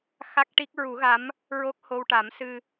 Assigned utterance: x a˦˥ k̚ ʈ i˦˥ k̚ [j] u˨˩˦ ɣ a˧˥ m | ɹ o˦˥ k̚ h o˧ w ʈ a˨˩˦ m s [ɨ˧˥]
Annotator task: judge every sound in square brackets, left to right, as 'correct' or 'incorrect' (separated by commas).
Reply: incorrect, incorrect